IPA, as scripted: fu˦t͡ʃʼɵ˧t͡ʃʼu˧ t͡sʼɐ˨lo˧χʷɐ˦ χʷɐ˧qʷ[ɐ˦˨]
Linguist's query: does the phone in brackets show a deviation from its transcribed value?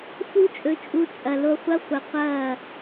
yes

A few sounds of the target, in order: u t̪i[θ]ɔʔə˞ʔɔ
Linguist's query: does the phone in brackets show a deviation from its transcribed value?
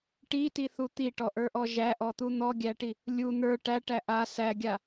yes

